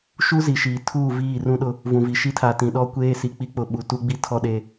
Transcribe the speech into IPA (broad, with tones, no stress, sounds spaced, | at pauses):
ʃ u˦ z i˨ ʃ iː˨ tʰ uː˦˨ v iː˦˨ r ũ˦ ɗ ʊ˦ | v ũ˨ v i˨ ʃ i˦ tʰ a˨ t ĩ˨ ɗ ɔ˦ kʷ eː˦ s i˨ k͡p i˦ k͡p ʊ˨˦ ɓ u˨ t u˦ ɡ͡b i˦ tʰ ɔ˦ ɗ e˦